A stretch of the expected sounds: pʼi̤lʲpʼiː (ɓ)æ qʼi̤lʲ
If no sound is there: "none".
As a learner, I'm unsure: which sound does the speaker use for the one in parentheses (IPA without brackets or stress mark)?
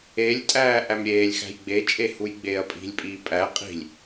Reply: pʼ